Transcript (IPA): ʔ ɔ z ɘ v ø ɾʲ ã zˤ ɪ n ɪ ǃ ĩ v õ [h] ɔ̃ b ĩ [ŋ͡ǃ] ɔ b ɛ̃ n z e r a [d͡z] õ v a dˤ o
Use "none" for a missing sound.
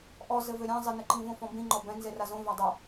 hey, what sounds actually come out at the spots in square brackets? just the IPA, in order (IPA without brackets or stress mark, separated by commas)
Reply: f, ŋ͡ǃ, z